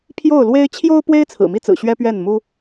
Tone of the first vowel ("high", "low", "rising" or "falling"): falling